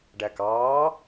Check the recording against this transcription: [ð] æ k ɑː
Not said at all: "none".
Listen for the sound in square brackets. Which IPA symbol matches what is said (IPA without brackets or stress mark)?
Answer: ɖ